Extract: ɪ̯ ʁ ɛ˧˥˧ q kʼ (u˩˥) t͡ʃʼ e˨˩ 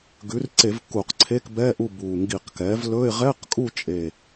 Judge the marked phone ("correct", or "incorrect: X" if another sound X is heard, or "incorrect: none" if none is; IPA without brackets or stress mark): incorrect: u˦˨